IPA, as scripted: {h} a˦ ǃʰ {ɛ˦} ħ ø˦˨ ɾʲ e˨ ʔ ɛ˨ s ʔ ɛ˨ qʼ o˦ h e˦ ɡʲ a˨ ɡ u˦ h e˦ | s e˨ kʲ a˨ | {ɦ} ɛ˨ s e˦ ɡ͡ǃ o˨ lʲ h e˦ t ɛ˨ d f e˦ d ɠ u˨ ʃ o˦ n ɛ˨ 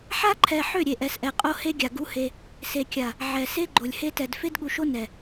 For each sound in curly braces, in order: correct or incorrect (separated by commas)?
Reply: incorrect, incorrect, incorrect